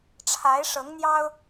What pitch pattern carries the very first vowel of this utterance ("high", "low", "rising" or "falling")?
rising